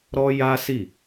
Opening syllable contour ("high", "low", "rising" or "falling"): high